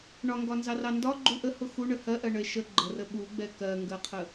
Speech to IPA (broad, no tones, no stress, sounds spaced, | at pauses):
ɳ ɒ ŋ ɡ ɒ n z ɑ r ɑ n d ɒ ɡ͡ǃ u ʔ ə h ʊ x u ɳ ə h ɜ ʔ ɜ ɳ ə e̯ ʃ ə ɡ͡ǃ ə r ə ɓ u ɡ͡b ɛ k ɜ ŋ ɡ ɜ qʰ ə